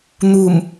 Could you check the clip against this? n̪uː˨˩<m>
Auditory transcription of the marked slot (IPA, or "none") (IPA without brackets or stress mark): m